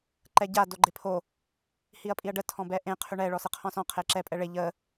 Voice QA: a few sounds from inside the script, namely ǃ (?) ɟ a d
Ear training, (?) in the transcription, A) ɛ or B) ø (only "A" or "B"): A